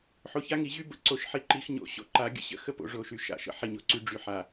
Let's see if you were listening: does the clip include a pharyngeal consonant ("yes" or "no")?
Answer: yes